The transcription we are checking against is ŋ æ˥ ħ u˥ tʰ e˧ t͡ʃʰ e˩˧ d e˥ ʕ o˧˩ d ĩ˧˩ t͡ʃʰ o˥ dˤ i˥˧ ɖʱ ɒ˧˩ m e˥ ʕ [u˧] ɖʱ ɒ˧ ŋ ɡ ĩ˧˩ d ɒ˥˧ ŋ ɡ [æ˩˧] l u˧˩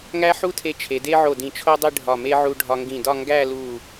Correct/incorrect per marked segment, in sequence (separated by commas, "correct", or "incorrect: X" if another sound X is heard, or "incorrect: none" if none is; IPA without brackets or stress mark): correct, incorrect: æ˥˧